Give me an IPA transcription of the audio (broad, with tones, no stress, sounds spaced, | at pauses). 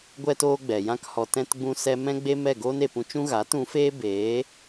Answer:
ɡʷ ɛ˧ t oː˧ ɡ͡b ɛ˨ j ã˦ k h ɔ˧ t ɛ̃˧ t ɡ͡b ũ˧ s ɛ˦ m ɛ̃˦ ɡ͡b e˦ m ɛ˦˨ ɡ oː˦ n e˨ p ũ˧ t͡ʃ ũ˦ ɣ aː˨˦ t ũ˨˦ f eː˦ b eː˨˦